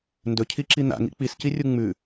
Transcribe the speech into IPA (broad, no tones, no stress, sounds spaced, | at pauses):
n d ɵ cʰ i ǁ i n̪ a̰ ŋ ḭ k͡p i s c i rʲ u ŋ͡m ʉ